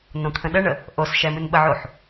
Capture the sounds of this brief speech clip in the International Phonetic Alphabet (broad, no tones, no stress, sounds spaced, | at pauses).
n õ t̪ʰ ə̃ ɗ ə ɳ ə | ʔ o s ʃ ɛ m ɨ n ɓ ə ʕ o ħ